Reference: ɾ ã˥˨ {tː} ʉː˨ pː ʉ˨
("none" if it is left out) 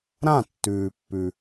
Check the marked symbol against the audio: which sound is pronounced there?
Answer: tː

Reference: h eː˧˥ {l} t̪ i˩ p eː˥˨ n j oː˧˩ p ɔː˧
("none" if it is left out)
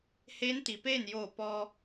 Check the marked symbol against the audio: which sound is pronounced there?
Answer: n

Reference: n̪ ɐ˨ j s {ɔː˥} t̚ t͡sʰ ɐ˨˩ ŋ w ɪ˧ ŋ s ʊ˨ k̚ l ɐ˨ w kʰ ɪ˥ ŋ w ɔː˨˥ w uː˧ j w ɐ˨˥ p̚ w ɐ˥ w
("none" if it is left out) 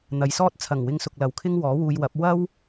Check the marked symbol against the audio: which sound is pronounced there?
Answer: ɔː˥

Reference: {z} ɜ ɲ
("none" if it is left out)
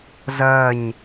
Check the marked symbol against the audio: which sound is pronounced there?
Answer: z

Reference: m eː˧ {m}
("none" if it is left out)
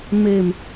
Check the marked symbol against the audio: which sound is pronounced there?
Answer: m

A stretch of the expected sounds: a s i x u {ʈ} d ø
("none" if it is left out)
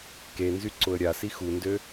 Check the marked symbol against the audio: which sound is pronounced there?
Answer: n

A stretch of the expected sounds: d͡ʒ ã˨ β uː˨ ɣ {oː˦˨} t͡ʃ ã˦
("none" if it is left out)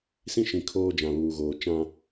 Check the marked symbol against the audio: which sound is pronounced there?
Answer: oː˨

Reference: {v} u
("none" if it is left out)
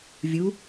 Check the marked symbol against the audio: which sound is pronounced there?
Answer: vʲ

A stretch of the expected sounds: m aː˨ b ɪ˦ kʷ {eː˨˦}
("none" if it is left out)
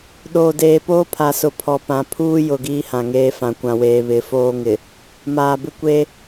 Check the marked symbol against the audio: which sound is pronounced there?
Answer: eː˦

